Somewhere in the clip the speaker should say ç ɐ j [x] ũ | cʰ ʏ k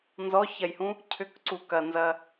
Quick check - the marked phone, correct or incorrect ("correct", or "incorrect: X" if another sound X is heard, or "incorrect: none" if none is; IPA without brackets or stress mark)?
incorrect: h